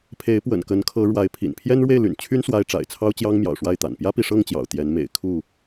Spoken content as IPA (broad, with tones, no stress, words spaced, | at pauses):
pʰe˨˦ɪ̯pwə̰˨˩n kə˨˦nkʰɤ˨˦ ɻwa˨˦ɪ̯pʰḭ˨˩n pʰjɛ˦nɻwe˥˨ɪ̯ly̰˨˩nt͡ɕʰy˦n swa˦ɪ̯ ʈ͡ʂa̰˨˩ɪ̯t͡sʰɑ˦ʊ̯t͡ɕjɑ˦ŋ mjɑ̰˨˩ʊ̯ʂwa˥˨ɪ̯t̪a̰˨˩n pjä˦pi˨ʂɤ˥˨ŋt͡ɕjɑ̰˨˩ʊ̯ t̪jɛ˨˦nmḛ˨˩ɪ̯ kʰu˥˨